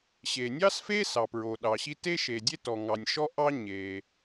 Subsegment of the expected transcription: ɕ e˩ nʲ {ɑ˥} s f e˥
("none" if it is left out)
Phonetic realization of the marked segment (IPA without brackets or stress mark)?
ɑ˥